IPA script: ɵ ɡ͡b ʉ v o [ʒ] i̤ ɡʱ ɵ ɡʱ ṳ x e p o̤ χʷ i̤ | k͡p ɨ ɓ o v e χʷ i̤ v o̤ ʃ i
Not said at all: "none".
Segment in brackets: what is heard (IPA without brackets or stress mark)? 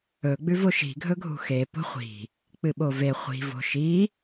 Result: ʃ